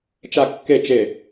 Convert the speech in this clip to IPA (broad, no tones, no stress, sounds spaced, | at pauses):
t͡ʃ a kː e t͡ʃ e